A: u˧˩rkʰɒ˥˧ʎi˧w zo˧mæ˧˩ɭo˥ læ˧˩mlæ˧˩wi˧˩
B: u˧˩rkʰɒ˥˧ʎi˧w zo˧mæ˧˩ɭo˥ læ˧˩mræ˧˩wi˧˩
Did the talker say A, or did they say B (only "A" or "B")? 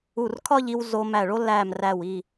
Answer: B